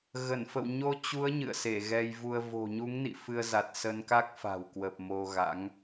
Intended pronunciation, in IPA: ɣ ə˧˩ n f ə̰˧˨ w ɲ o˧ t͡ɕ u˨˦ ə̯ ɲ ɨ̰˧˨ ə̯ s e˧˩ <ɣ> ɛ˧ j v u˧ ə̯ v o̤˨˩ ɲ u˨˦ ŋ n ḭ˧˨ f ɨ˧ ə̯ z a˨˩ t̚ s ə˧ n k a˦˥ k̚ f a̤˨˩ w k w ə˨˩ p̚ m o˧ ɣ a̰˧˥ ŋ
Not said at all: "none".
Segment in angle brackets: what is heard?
ɣ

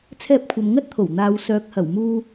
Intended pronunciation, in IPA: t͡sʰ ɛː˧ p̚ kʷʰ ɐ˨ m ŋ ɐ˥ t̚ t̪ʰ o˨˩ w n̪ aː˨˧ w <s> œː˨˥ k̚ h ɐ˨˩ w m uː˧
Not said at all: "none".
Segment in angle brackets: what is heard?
s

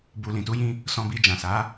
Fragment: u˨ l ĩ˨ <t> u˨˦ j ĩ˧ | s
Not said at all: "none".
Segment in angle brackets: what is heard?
t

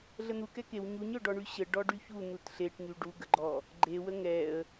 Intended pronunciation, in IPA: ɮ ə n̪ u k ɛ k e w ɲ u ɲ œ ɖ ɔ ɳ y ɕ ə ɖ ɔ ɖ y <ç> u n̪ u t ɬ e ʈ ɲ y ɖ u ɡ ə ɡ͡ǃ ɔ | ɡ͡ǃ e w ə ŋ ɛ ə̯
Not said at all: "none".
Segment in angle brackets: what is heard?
ç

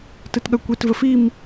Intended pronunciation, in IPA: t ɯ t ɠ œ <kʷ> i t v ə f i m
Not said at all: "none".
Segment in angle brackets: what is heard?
kʷ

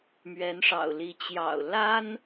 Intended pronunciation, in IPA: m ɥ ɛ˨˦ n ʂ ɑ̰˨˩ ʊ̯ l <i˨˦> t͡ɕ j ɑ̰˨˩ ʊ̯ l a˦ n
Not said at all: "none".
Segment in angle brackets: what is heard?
i˨˦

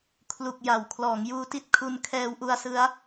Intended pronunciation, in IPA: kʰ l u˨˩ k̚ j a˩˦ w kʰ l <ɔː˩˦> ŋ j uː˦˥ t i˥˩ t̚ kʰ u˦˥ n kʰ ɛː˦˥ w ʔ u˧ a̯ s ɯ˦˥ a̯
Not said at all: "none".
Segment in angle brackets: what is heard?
ɔː˩˦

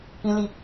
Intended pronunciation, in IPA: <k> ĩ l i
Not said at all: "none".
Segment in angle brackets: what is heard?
k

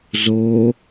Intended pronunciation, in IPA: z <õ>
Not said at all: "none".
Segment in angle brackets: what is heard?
o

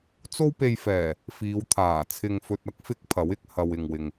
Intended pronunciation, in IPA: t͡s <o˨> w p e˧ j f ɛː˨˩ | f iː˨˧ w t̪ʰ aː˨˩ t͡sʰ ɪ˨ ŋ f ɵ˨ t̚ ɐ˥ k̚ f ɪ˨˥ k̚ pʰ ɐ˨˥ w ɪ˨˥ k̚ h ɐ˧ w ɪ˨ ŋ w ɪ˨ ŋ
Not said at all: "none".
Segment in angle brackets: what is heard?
o˥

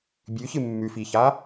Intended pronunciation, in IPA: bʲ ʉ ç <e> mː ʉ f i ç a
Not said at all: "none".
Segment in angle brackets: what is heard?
ɨ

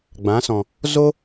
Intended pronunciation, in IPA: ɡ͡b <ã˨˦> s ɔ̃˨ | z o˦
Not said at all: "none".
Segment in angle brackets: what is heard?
ã˨˦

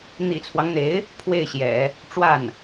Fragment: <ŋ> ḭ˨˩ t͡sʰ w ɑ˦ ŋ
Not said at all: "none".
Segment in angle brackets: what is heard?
n̪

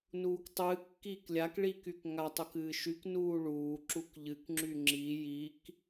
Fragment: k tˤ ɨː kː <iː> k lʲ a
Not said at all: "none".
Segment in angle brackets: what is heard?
iː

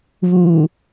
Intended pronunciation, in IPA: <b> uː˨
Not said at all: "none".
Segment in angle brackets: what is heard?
β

